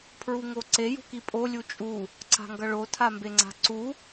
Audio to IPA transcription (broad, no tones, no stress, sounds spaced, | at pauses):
pʰ ɹ u ŋ o ǀ e j ṳ k i pʼ o lʲ u t͡ʃʼ u | ǀ a̤ ŋ ɡ ʌ ɭ o tʰ a m b e ŋ͡ǀ a̤ ǀ u